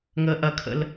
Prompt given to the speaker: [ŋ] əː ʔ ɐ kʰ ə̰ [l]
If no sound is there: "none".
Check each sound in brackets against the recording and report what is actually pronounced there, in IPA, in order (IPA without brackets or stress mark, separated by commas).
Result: ŋ, l